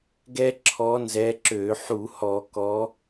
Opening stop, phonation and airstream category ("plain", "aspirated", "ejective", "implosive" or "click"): plain